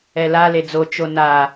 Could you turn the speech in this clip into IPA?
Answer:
ɛ l a l e d͡z o t͡ʃ o n a

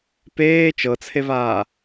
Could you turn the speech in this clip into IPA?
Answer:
p eː t͡ʃ ɤ t͡sʰ e v aː

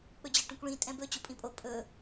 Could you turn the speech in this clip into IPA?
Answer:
k͡p ɵ d͡ʑ ə˞ ʈ ũ kʷ ɭ ĩ tʼ ɛ̃ b ɵ t͡ɕ u pʼ ĩ pʼ o pʼ ɵ

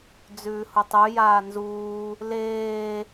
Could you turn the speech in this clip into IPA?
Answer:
d͡z ʉː h u tˤ ʉ j aː n z uː | l eː

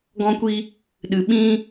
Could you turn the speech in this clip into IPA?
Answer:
ɡ ɔ̃˦ kʷ i˦ | ɗ ɨ˨ ɓ ĩ˦

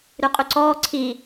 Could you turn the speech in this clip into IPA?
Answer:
ɾ ʉ qʼ ʉ ǀ ɔː ǀʰ i

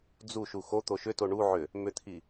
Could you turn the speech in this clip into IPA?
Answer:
d͡z u ʃ u x o t̪ o ʃ ʏ t o ɳ u ʕ ʏ | m ʏ t̪ʰ i

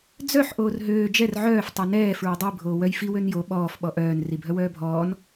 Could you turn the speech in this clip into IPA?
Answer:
d͡z œ ħ ʔ oː r ɦ øː d͡ʒ ɛ r ʕ œː f tˤ ø n ɛː f ɹ ɛ dˤ i bʱ oː w œ j f i w ø n j o ɓ ɔː f ɓ ɔ ʔ œː n r i bʱ œ w œː bʱ ɔː n

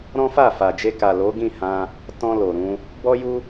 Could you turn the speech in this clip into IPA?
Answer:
ɾ ɔ̃˦ f a˦˨ f a˨ d͡ʒ e˧ k a˨ l o˨˦ ɡ ĩ˦˨ h ã˧ | t ɔ̃˧ l o˨ ɾ ũ˧ | b ɔ˦ j u˦

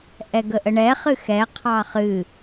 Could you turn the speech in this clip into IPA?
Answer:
ʔ ɛ ɡ ə ʔ ə ɳ ɛ χ ɨ x ɛ qʰ ɑ χ ɨ

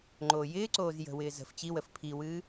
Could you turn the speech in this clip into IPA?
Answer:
ŋ͡ǃ oː j ɪː ǀ oː z j ə̤ w ɪː z ə̤ f t͡ɕ i w ə f pʰ i w ɨː

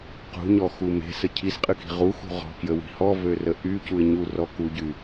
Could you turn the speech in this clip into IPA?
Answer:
q ṳ ɲ ɔ x u m e̤ s ə cʰ i s qʼ ɨ k i̤ ʁ u x ṳ ʁ ɔ̤ k j ə w i̤ h ɔ v ø r ə ʔ y c u ɪ̯ ɲ u r ɔ k u ɟ y

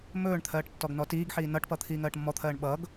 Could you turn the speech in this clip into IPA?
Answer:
m ɵː ɳ t̪ʰ ɜː ʈ tː ɔ ɡ n ɔ t iː ɡ ħ iː n ʌ ʈ p ʌ t̪ʰ iː ŋ ɜː ʈ mː ɔ t̪ʰ ɜː ɳ ɓ ʌː ɡ

